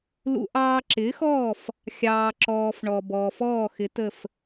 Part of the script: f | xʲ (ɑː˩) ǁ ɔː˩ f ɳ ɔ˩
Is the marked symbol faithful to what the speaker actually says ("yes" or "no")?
yes